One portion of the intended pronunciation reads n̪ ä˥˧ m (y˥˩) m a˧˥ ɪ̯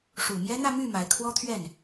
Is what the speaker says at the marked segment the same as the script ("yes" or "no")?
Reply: yes